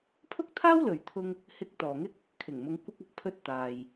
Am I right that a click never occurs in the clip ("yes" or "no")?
yes